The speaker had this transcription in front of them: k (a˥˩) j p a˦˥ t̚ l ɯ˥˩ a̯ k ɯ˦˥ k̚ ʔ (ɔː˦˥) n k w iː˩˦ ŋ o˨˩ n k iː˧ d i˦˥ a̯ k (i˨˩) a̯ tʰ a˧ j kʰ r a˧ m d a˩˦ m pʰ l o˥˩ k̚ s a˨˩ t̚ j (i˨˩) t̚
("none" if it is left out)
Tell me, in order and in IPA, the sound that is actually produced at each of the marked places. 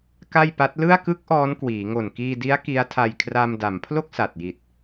a˥˩, ɔː˦˥, i˦˥, i˨˩

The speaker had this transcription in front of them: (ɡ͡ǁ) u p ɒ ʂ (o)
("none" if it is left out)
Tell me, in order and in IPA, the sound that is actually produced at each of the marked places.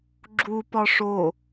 ɡ͡ǁ, o

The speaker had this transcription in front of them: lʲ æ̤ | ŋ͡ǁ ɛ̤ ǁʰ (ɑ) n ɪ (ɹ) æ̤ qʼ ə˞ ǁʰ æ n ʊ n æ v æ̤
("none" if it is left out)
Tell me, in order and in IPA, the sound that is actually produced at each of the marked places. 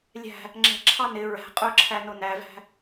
ɑ, ɹ

